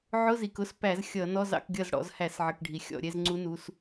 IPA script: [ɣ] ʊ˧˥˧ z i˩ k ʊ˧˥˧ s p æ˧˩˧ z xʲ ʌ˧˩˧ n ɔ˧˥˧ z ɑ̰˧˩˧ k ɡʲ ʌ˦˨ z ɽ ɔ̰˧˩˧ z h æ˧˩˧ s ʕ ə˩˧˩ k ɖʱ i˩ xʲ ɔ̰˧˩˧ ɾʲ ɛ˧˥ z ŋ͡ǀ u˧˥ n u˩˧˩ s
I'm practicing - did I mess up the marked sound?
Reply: yes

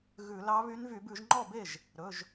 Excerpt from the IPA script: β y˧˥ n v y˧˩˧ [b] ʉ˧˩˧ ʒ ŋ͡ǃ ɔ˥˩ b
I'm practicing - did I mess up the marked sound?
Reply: no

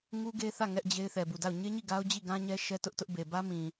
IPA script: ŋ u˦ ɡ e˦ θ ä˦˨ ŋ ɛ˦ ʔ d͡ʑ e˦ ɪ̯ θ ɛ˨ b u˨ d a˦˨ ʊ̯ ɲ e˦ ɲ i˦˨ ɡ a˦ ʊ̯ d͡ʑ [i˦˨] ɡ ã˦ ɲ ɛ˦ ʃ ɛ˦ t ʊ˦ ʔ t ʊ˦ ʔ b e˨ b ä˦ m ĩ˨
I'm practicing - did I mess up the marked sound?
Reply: no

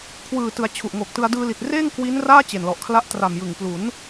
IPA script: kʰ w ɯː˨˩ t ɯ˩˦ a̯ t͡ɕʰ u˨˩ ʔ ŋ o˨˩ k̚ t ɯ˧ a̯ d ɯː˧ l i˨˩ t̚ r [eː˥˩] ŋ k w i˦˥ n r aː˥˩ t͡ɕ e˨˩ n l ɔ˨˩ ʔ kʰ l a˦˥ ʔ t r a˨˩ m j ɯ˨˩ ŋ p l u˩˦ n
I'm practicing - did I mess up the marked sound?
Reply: no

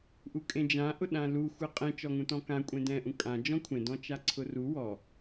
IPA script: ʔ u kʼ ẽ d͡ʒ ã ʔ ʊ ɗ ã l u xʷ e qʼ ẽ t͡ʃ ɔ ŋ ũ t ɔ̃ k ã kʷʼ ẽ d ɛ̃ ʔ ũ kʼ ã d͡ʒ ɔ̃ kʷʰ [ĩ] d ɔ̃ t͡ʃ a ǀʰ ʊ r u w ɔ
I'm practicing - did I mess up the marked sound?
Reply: yes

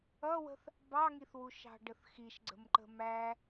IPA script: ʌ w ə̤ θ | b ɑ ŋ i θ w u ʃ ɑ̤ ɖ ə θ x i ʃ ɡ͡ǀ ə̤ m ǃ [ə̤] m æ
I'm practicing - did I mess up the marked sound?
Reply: no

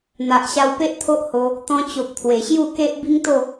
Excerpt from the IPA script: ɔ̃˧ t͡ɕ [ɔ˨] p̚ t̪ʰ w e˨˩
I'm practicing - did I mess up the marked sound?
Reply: yes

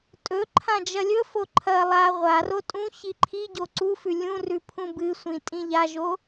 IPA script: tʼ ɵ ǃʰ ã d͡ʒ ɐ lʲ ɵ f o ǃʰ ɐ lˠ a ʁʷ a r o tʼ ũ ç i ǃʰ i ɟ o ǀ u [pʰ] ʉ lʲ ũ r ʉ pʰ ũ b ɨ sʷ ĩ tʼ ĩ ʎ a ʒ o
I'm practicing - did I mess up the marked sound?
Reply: yes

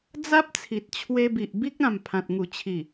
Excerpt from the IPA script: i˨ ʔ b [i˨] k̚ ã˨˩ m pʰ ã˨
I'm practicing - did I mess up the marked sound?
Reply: yes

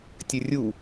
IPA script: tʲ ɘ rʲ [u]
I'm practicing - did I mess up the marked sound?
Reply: no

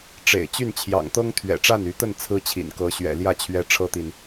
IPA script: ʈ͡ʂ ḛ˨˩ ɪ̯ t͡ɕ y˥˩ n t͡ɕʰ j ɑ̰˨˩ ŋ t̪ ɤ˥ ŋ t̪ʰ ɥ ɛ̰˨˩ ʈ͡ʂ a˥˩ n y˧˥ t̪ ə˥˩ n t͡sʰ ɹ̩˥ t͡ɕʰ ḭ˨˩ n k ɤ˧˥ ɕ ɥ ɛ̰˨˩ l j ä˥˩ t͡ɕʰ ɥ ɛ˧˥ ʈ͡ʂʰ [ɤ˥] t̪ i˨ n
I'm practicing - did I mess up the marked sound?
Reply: no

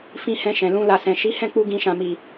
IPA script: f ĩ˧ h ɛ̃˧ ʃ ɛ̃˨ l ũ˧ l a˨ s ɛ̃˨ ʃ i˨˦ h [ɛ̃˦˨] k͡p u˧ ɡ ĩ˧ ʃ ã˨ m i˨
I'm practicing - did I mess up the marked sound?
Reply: no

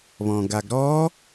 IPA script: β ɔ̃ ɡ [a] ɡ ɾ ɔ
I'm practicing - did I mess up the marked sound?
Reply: no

